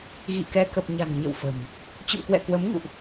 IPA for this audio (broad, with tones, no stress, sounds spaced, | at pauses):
ɣ ḭ˧˨ k ɛ˧ k ə˨˩ p̚ ɲ a̤˨˩ n ɲ ə̰˧˨ w f ə̤˨˩ m | t͡ɕ ə̰˧˨ m k w ɛ̰˧˨ k w ə˨˦ m ŋ ṵ˧˨ ʔ